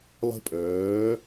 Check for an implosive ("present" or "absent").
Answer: absent